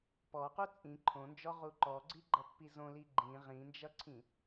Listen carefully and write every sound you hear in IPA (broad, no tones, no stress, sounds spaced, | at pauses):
p ɔ q u t͡sʼ ĩ ǃʰ õ n d͡ʒ ɔ ʁ u ǃ ɔ ɡ͡ǀ i ɡ͡ǃ ʌ pː i z õ l i ɡ͡ǃ ĩ ʁ ĩ n d͡ʒ ʌ ǀʰ ĩ